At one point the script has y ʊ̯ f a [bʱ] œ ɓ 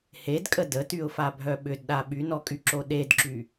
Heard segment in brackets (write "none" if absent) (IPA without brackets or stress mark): bʱ